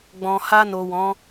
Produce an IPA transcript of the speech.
ɡ͡b ɔ̃˨ h a˧ n o˨ w ɔ̃˨˦

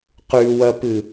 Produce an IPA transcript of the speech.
q ʉ w ɐ p ɨ

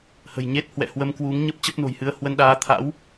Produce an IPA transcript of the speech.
h ə̤˨˩ j ɲ e˦˥ t̚ h w ɛ̰˧˨ h w ə˧ m k w u˨˦ ŋ ɲ ə˦˥ p̚ t͡ɕ ə˦˥ p̚ n o̤˨˩ j h ɨ˧ ə̯ h w ə˧ n ɗ aː˨˦ t̪ʰ a̰˧˥ w

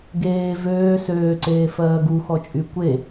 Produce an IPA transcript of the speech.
ɡ eː v øː s øː ǀ eː f ɜː ɡ u x ɔ t͡ʃʼ y kʷ e

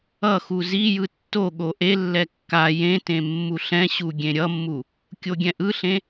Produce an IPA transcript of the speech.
ʌ x u z i j ɯ tː o ɠ o ʔ e lː ɛ kː a j ẽ t ẽ mː u ɬ ɛ̃ ɕ u ɡʲ ẽ ɾʲ ʌ mː u | kʲ o ɡʲ ɛ̃ ʔ ɯ ɬ ẽ

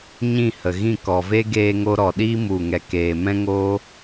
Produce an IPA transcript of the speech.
ɲ ĩ˦˨ h ə˨ ɣ ĩ˦˨ k ɔ˨ v e˦ ɡ eː˧ ŋ o˧ ɾ ɔ˨ ɗ iː˦ m u˦˨ ŋ ɛ˧ k eː˨ m ɛ̃˦ ŋ oː˦

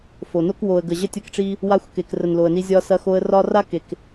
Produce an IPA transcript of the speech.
f o˨ n o˦ k w o˨ ə̯ ɡ ə˨ ʑ ə˧ tʲ ɐ˧ k ʈ͡ʂ i˧ | w a˧ xʷ k e˨ k r ə˨ n l o˨ ə̯ n i˧ zʲ ɒ˧ s ɐ˧ x o˧ ə̯ r ɒ˦ r a˦ k e˨ k

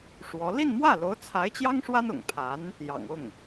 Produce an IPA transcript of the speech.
ʂ w ɔ˧˥ l i˥˧ n m w ä˥˩ l o˧˥ ʊ̯ t͡sʰ a˧˥ ɪ̯ t͡ɕ j ɑ˥ ŋ ʂ w a˥ n ʊ̰˨˩ ŋ pʰ a˧˥ n | j ɑ̰˨˩ ŋ ʊ˥˩ ŋ

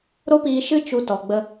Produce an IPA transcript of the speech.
ɾ o˦ p iː˧ ʃ ɨ˦ t͡ʃ u˧ t ɔ˨ ɡ͡b ə˧

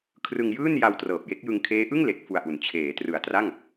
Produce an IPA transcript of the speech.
kʰ r ɯ˧ ŋ j ɯː˥˩ n j a˧ w t r ɤː˨˩ p̚ j e˦˥ k̚ j ɯ˧ ŋ kʰ eː˦˥ ʔ ɯ˥˩ ŋ l e˨˩ k̚ f u˨˩ a̯ ʔ u˩˦ n t͡ɕʰ eː˩˦ t r ɯ˨˩ a̯ t r a˥˩ ŋ

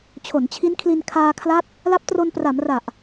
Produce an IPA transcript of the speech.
t͡ɕʰ o˩˦ n t͡ɕʰ i˦˥ n kʰ l i˧ n kʰ aː˧ kʰ l a˦˥ t̚ | l a˦˥ p̚ t r o˧ n p r a˩˦ m r a˨˩ ʔ

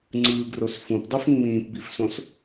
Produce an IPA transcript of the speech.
ŋ͡ǀ ɯː ɡ r o s f ũ p dˤ u f ŋ͡m ĩː p b i f s õ s

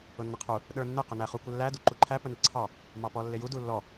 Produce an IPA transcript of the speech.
ʊ nː ɪ qʰ u | ɗ ə˞ nː ɪ q ʊ n æ χ u kʷ ə lː æ d u ǃ u ǃʰ æ p ə n i ǀʰ ɑ | m ɑ p ɔ lː ɪ j u d u lː ɔ

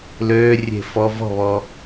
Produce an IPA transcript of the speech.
l øː rʲ e̤ f ɔ v ɔ̤ β ɔ

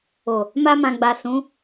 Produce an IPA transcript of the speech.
o˨ | m a˦ m ã˧ ɡ͡b a˨ s ũ˨˦

